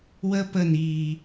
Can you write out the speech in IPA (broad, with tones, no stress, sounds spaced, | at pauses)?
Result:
w ə˦ p ə˦˨ n iː˨